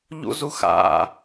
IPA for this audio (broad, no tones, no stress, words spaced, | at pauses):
ʎṵzuxa̰